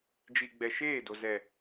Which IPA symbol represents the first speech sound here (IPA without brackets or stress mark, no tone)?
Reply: d͡ʒ